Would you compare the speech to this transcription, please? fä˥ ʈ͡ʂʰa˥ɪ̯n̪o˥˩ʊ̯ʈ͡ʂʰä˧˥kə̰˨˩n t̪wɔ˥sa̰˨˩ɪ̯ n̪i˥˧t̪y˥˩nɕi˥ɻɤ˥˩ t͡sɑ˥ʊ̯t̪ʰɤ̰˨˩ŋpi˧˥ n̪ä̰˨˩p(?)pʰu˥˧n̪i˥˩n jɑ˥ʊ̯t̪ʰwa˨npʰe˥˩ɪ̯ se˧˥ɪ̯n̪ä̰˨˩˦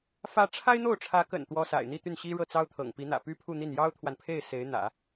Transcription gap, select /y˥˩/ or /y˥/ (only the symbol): y˥